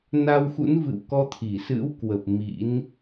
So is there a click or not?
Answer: no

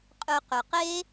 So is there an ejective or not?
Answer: yes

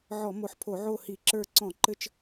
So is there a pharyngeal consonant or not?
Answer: yes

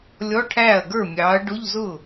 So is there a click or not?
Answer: no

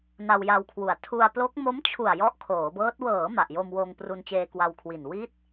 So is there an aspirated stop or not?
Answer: yes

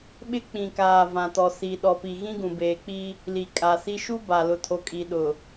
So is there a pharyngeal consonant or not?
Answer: no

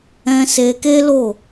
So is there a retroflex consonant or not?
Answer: no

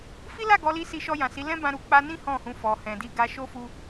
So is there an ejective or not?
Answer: no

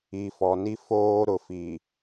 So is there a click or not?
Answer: no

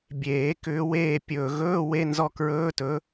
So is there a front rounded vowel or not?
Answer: yes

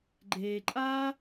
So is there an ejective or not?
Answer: yes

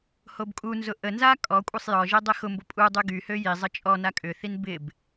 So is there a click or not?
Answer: no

